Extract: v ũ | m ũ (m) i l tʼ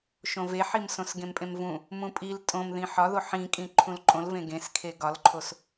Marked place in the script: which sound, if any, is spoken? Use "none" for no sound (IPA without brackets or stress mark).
pʼ